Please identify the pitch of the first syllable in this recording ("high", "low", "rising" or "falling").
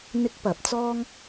high